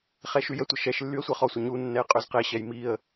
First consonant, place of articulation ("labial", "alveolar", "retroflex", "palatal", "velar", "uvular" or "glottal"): uvular